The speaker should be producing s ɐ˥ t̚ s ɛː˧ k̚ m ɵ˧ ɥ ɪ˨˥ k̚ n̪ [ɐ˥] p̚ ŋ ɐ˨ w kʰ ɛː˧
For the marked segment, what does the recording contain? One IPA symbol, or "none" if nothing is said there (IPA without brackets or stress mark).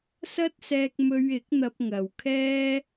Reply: ɐ˧